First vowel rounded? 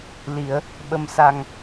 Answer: no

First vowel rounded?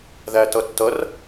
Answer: no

